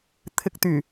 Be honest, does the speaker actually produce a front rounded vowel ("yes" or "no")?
yes